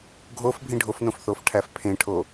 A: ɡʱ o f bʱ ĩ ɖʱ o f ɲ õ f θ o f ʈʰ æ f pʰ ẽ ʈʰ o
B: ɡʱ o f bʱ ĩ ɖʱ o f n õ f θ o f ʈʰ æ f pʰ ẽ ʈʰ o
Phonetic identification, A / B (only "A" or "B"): B